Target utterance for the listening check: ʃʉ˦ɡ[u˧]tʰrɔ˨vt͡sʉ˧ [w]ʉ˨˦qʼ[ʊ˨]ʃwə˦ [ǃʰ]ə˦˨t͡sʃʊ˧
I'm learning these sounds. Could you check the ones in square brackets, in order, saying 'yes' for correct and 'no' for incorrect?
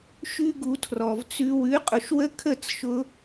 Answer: yes, yes, yes, no

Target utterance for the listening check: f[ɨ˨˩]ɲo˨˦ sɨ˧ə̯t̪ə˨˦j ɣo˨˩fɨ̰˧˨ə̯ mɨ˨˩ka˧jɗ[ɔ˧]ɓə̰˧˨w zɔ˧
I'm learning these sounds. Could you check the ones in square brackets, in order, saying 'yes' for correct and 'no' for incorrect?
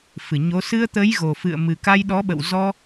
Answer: no, no

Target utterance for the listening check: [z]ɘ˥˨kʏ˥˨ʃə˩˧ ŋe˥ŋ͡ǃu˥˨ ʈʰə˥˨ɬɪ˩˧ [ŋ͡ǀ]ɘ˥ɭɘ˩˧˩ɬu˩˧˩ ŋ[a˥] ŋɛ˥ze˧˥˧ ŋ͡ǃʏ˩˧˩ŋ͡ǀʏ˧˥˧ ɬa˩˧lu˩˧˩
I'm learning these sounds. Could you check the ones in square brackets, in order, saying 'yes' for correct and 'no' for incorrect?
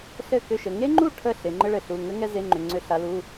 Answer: no, no, no

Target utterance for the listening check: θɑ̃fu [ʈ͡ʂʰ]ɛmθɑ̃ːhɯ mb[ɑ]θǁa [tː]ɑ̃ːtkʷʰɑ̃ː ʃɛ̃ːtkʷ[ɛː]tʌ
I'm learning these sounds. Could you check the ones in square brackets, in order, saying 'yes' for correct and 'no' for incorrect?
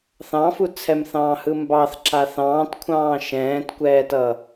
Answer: no, yes, no, yes

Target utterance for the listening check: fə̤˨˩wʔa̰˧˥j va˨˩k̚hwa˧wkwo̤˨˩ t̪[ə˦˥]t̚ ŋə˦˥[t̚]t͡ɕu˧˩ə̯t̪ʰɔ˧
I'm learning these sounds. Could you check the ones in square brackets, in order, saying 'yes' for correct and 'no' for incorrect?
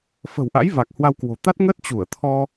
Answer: no, yes

